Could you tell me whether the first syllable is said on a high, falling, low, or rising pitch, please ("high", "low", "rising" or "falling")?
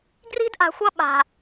high